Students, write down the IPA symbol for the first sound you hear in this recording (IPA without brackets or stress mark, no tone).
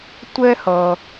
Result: tʷ